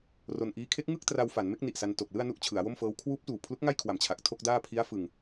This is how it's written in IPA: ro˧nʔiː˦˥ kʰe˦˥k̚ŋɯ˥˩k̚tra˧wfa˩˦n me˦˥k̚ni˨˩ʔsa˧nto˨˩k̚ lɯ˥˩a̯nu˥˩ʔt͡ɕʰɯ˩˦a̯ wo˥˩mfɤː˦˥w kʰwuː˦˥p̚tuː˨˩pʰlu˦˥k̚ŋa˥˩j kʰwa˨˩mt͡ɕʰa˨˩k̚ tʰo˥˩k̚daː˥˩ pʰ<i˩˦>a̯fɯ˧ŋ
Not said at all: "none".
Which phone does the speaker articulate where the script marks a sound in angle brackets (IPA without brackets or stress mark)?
i˦˥